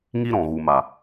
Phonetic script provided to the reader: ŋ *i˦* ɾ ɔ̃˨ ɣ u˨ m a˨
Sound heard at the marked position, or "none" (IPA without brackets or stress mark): i˦